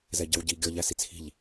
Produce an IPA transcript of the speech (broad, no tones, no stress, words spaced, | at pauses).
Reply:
zɛɟɑ̤wɟi ɡʲɔ ʎæsit͡sʰi̤ʎ